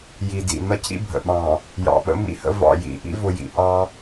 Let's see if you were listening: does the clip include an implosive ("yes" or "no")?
yes